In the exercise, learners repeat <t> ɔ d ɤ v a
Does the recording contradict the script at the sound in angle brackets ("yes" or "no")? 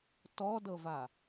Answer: no